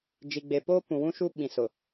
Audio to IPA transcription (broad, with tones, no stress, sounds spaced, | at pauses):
d͡ʒ i˨ ɡ͡b e˨ p oː˦ p ũ˨ w ũ˦ ʃ u˦ ɓ ĩ˨ s ʊ˨